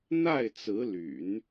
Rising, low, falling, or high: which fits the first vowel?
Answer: falling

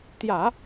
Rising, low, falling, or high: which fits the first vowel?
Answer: low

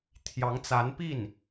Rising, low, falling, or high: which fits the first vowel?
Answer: rising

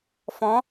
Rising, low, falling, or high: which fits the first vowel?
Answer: rising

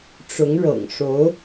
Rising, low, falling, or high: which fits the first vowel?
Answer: rising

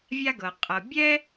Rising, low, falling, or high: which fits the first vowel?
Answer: high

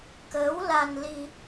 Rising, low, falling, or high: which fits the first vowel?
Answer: rising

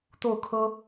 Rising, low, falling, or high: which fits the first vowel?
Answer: falling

